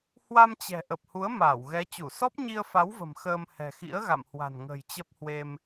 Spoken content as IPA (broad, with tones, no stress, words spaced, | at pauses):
hwa˧mt͡ɕɛ̤˨˩ ʔə˨˩p̚hu˨˦ə̯ maː˧˩wɣɛ˨˦t͡ɕu˧˩ sɔ˦˥p̚ɲi˧ə̯fa˨˦wvə̤˨˩m xəː˧m hɛ̤˨˩xḭ˧˥ə̯ɣa̰˧˨mhwa̤˨˩n ŋə̤˨˩jt͡ɕə˦˥p̚hwe˧m